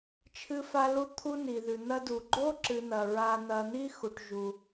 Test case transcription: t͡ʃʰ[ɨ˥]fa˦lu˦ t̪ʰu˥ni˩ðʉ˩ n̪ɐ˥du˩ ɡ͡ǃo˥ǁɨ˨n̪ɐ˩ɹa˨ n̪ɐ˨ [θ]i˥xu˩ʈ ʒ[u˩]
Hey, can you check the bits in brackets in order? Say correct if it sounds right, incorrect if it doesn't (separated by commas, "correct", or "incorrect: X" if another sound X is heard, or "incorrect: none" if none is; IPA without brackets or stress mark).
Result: incorrect: ɨ˦, incorrect: n̪, correct